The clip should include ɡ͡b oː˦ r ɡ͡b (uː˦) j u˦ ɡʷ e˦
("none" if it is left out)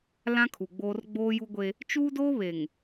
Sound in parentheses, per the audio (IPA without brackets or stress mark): oː˦